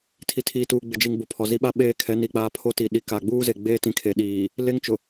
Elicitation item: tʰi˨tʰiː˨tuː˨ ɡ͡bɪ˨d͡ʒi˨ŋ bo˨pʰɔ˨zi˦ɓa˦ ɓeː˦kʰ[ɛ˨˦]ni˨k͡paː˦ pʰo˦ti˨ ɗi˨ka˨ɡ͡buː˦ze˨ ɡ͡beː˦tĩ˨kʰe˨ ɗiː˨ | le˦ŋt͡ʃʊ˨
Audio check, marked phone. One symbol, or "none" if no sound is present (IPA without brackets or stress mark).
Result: ɛ˨˦